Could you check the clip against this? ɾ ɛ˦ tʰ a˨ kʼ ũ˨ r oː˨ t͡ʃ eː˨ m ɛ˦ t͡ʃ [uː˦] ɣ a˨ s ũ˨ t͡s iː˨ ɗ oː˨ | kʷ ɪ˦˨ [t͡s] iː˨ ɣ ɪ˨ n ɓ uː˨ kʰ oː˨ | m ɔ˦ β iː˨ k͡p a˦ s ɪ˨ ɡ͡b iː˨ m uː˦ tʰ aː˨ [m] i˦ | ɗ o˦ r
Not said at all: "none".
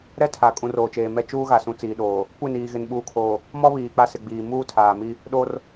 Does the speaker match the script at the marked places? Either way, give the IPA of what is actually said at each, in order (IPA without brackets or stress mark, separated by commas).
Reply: uː˦, n, m